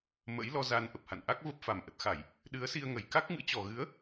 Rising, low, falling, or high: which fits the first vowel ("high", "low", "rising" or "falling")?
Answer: rising